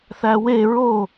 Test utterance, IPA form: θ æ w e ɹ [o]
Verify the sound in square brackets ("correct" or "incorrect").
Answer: correct